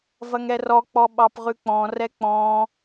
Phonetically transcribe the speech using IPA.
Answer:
v ɐ ŋ ɛ r ɔ k͡p ɔ ɓ ɑ p ʁ ʉ k͡p ɔ̃ r ɛ k͡p ɔ̃

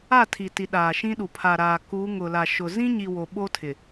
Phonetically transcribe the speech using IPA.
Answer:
a˦˨ tʰ i˨ t i˨ ɗ aː˨ ʃ ĩ˦ ɗ u˨ pʰ a˨ ɾ aː˨ k uː˨˦ ŋ ʊ˨ l a˨ ʃ ʊ˨ z ĩ˦ ɲ i˨ w o˨ ɓ o˦ tʰ ɪ˨

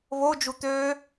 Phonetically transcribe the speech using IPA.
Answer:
β o d͡ʒ u t̪ øː

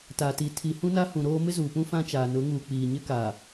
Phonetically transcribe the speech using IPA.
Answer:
t a˨ t i˨ tʰ i˨ h ũ˦ n a˦ h ũ˨ ɾ oː˦ m ɪ˦ z uː˨ p ũ˦ f ã˦ t͡ʃ aː˨ n ʊ˨˦ ŋ uː˨ k͡p iː˨ ɲ ɪ˦ k aː˨

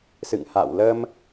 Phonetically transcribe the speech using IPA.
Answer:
s ɨ̰˧˨ ŋ h a̰˧˨ w l ə˧ m

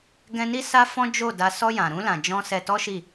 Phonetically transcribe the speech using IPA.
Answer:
ɡ ɛ̃˧ n i˦ s a˦ f ɔ̃˦ d͡ʒ o˦˨ d a˧ s ɔ˧ j ã˨ ɾ ũ˧ l ã˨ d͡ʒ ɔ̃˧ s ɛ˧ t ɔ˦ ʃ i˦˨

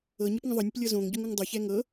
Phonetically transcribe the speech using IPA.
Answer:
ɤ ɲ ɛ p ŋ ə̃ ðˤ ɤ nʲ ə p lʲ ɤ z õ ŋ ɟ ʊ ŋ ʊ ŋ dˤ ʊ ç ɛ ŋ ɤ

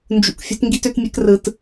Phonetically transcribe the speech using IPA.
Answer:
n d͡ʒ ṵ˧ k fʲ o̤˦ t ŋ ɡ i˦ t ø˦ t mʲ e˦ k r ɯ˧ t

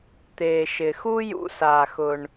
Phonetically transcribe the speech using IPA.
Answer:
t̪ eː˩ ʃ ɪ˩ x u˥ j ṵ˧ s aː˩ x ʊ˩ ɳ

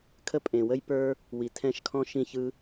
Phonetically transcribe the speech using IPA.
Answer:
kʰ ə˦ pʼ ẽ˨ w ə˦ j p ə˞˦ | w i˨ tʰ ɛ̃˦˨ ʃ kʰ ɔ̃˦ ʃ ĩ˦ ç ɯ˦

